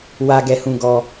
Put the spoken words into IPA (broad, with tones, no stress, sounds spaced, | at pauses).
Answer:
w a˧ ɡ ɛ˧ h ũ˧ ɡ ɔ˧